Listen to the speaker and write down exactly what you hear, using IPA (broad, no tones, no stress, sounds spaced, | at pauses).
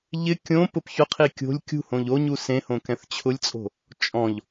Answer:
ʎ ɪ kʲ õ p ʊ p ç ʊ qʰ i kʲ o̤ lʲ kʲ ṳ h õ ʎ o ɲ u s ẽ h õ k ɛ̃ θ t͡ɕʰ ʊ lʲ t͡sʼ o̤ | t͡ʃʼ ɔ̃ ʎ